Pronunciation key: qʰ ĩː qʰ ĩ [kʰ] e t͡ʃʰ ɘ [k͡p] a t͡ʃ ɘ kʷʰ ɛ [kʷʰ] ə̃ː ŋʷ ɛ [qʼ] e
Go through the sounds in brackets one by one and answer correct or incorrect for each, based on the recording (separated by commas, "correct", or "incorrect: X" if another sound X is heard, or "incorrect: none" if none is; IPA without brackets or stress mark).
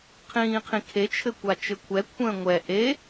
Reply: correct, incorrect: kʷ, correct, incorrect: ʔ